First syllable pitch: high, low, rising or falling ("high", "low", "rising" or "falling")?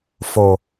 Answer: low